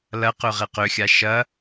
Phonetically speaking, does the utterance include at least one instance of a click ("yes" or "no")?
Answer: no